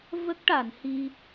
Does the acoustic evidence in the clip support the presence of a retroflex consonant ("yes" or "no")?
yes